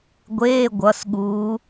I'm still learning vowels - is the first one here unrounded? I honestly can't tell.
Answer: yes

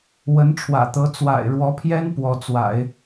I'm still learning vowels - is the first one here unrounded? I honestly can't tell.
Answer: yes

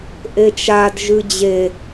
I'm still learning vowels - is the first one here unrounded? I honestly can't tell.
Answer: yes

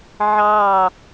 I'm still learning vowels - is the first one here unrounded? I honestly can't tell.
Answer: yes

